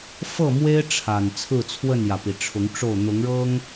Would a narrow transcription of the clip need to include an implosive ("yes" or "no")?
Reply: no